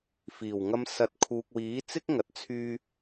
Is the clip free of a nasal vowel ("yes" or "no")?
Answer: yes